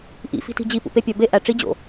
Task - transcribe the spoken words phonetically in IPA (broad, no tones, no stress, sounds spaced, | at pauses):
ʔ ḭ f i̤ t i̤ d͡ʑ i p ṵ p e pʲ ɒ b e ʔ æ ʈ͡ʂ i d͡ʑ o̰